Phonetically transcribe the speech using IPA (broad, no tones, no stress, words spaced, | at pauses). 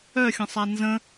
œxʲə̃sˤa nzə̃